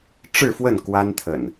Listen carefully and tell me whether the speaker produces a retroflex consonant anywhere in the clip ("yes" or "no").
yes